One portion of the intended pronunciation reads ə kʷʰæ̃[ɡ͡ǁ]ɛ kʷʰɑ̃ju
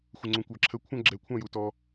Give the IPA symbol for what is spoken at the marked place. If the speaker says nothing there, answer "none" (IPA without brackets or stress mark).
ɡ͡ǁ